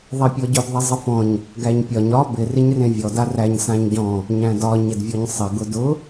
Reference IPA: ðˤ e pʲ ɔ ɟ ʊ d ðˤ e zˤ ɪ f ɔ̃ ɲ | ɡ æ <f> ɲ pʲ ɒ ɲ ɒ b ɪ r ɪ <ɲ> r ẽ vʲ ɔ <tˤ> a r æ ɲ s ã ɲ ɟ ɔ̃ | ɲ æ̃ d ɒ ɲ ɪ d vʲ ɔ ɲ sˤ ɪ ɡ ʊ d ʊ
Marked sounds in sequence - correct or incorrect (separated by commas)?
incorrect, correct, incorrect